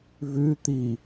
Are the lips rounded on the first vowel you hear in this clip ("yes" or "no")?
yes